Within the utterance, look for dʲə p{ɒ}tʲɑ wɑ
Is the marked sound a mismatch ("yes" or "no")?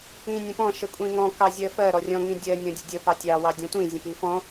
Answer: yes